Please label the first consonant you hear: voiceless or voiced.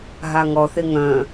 voiced